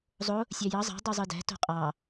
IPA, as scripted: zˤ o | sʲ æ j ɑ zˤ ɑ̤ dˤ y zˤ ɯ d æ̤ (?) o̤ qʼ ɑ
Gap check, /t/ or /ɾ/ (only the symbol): t